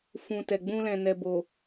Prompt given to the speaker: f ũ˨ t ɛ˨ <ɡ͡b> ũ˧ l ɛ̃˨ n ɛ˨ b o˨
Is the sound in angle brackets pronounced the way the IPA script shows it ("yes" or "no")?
yes